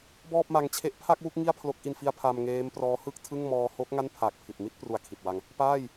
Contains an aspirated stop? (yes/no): yes